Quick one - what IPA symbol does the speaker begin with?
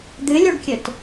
d̪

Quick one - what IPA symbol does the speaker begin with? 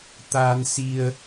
t̪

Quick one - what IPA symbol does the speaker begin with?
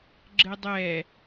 ɡ͡ǁ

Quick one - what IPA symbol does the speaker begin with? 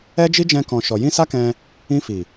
ɛ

